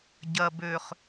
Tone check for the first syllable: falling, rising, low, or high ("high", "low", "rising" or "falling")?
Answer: low